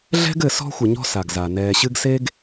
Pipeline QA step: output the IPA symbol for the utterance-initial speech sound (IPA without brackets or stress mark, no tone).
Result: ɮ